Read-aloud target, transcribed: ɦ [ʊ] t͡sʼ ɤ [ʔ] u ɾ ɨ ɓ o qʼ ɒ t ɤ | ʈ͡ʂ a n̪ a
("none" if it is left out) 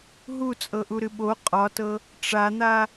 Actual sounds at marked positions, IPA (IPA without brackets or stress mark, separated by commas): u, ʔ